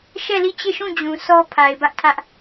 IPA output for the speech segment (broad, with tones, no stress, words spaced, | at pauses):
ʃɛ˦˨li˦˨t͡ɕe˦˨ʃũ˦˨ d͡ʑũ˨sɔ˦ pʰa˨ɪ̯bä˦ʔtʰä˦ʔ